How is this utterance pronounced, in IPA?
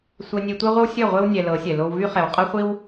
sʷ ɛ˧ nʲ e˧ tʷ e˦ ʁʷ ə˦ w sʲ œ˦˨ ʁʷ e˦ w nʲ ɛ˧ l ɤ˨˦ sʲ ɛ˨ l o˧ w v y˦ χ ɛ˨ w qʼ ɤ˦ χʷ i˦ w

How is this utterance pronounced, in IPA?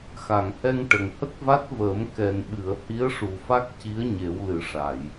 x a˨˩˨ ŋ h ɛ˧ ŋ ʈ ə˨˩ ŋ h ə˦˥ k̚ v a˦˥ t̚ v əː˨˩˦ m k ɛ˨˩ n ɓ ɨ˨˩˨ ə̯ h i˧˥ ə̯ ʂ u˨˩ f a˦˥ k̚ c i˧˥ ə̯ ɲ e˨˩˦ w l ɨ˨˩˦ ʂ a˨˩˨ j

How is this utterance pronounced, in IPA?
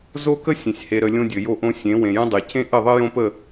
z o˦ k ə˦ sʲ ẽ˨ sʲ h e˨ ɾ ə˨ lʲ õ˦ dʲ ɘ˨ j o˦ ʔ õ˦ sʲ ẽ˨˦ w ẽ˨ j ə̃˦ dˤ e˨ c ẽ˦ ʔ ɘ˦˨ ðˤ ɘ˦ j õ˦ p ə˦˨

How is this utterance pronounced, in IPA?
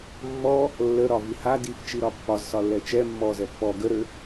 mː ɔ | lː ə ɾ ɒ v i h a d i f t͡ʃ i ɾ ɒ pː ɒ z s ɒ lː ɛ t͡ʃ ɛ mː ɔ z ɛ pː ɔ ɡ ə ɾ ø

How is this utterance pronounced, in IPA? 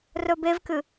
r ɵ b e v k ɨ

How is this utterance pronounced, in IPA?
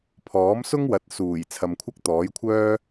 pʰ ɔː˨˥ m s ʊ˥ ŋ w ɐ˨˥ t̚ s uː˨˩ j t͡sʰ ɐ˨ m kʷʰ ɐ˥ k̚ t̪ ɔː˨˥ j kʷʰ œː˥

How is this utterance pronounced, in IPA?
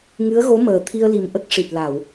ŋ ɨ˧˥ ə̯ ɣ o˧˥ m əː˨˩ t̪ʰ i˧ ə̯ l i˨˩ m ʔ ə˦˥ k̚ ʂ i˨˩ t̚ l a˨˩˨ w

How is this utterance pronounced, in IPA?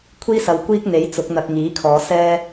kʷʰ iː˥ s ɐ˨ w kʷ iː˥ k̚ n̪ e˨˥ j t͡s ʊ˨˥ k̚ n̪ ɐ˧ k̚ ŋ iː˨˥ kʰ ɔː˨˧ s ɛː˥

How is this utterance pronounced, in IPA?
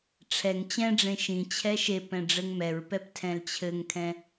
ʈ͡ʂʰ ɛ ŋ t͡ɕ ɛ̃ ɖ͡ʐ ẽ ʃ ĩ t͡ɕʰ ɛ ʃ e p ɛ̃ ɖ͡ʐ ɘ ŋ m ɛ ɹ p ɛ p tʰ ɛ̃ l t͡ɕʰ ɘ ŋ kʰ ɛ̃

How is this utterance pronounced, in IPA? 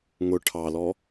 ŋ ʊ ʈʰ ɑ l ɔ

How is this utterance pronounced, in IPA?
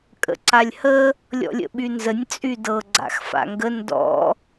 kʼ ə̰ ǀ a lʲ h ə | lʲ ɔ̰ lʲ ə̰ ɓ y n z ə nʲ t͡sʼ y d ɤ ɡ͡ǀ a̰ x f a̰ ŋ ɡ ə n d ɔ̰

